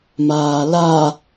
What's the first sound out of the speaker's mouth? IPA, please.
m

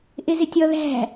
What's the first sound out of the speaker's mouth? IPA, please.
ʔ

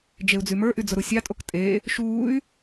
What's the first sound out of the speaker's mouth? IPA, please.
d͡ʒ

